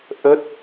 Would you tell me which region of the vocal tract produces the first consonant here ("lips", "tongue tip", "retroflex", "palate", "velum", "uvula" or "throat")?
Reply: throat